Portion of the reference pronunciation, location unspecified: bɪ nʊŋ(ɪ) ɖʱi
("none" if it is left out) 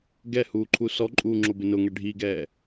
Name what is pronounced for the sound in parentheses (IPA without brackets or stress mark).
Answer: ɛ